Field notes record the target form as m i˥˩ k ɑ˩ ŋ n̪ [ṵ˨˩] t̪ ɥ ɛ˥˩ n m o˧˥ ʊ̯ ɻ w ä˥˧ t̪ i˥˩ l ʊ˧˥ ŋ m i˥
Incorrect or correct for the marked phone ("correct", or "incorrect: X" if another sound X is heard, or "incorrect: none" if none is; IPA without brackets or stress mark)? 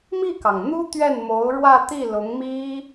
incorrect: u˥